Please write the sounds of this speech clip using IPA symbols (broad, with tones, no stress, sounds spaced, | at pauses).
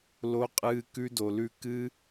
l o˧ qʼ ɨː˧ k ʉ˧ d o˨ l ʉ˧ k ɨ˦